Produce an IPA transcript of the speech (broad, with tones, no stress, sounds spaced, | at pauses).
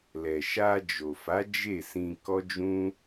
l ɛ˨ ʃ a˧ d͡ʒ o˨ f a˨˦ d͡ʒ e˦˨ s ĩ˧ k ɔ˦ d͡ʒ ũ˦